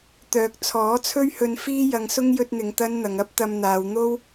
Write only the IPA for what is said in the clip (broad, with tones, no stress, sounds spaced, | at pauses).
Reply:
t̪ œː˨ k̚ t͡sʰ ɔː˨˥ t͡sʰ ɵ˥ ɥ h ɵ˧ n f iː˥ j ɐ˧ ŋ s ʊ˥ ŋ j ɵ˥ t̚ n̪ ɪ˧ ŋ t̪ ɐ˥ n n̪ ɐ˨˧ ŋ ɐ˥ p̚ t̪ ɐ˧ m n̪ aː˨˧ w n̪ o˥ w